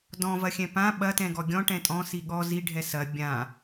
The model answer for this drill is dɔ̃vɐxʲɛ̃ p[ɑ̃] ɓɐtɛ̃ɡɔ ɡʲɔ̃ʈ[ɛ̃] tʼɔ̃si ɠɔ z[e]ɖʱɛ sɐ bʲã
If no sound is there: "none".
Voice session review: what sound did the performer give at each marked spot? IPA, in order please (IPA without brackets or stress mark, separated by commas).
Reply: ã, ɛ̃, i